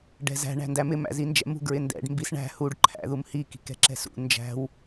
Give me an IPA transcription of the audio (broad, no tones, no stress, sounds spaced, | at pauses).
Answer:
ɖ ɛ̤ z æ̤ ɳ æ̤ n d æ m ɪ m æ̰ z i n d͡ʒ ɛ̰ m ṳ ɡ ɹ ɪ n d ɛ̰ ɖ m b i s ɳ æ̤ h u ɖ ǃʰ æ̰ ð u m h i k i̤ k ɛ̤ ǁ ɛ̤ s ṵ n d͡ʒ æ̤ w